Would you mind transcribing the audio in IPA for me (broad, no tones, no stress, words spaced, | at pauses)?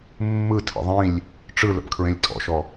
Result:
mːɯ tʰə̰ðˤĩlʲ | ʈ͡ʂɯlə̰pkʰɹẽlʲ tʼɔ̰ʃɔ